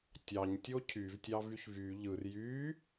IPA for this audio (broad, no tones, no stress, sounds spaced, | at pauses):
tʲ ɑ ɲ tʲ o cʰ y v tʲ ɑ v y ç v y ʎ ɯ r j y